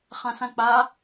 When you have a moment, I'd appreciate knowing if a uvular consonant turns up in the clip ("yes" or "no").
yes